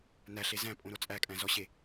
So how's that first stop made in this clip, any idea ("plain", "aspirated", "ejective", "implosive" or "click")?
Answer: ejective